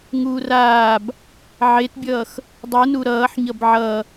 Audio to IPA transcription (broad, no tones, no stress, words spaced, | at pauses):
ŋuːraːb | ʕetbʲʌːx | dˤɯnu ɾʌːħɲʌb ʕʌ